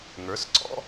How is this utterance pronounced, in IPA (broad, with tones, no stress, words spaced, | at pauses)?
ŋə˞˩˥sǀɔ̰˥